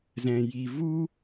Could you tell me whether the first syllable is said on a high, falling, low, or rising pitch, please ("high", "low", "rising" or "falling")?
low